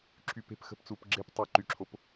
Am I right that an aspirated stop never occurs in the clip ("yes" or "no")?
no